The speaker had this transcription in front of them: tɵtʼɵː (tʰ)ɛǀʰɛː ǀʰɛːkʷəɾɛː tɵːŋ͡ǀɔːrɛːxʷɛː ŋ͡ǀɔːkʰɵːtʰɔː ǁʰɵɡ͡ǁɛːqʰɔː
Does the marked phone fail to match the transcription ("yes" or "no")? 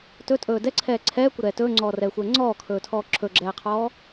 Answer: yes